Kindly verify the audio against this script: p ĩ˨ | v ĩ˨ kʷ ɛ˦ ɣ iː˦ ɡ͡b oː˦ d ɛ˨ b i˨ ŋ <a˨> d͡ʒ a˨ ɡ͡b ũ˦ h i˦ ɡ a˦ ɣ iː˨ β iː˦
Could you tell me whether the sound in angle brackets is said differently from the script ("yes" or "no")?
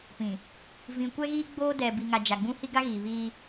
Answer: no